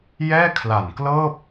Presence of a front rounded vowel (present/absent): absent